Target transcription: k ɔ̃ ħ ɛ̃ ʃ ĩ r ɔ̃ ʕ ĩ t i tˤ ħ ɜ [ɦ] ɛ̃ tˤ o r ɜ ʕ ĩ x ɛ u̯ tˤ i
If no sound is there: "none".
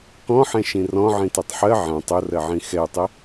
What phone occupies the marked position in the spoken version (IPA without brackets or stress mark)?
ʕ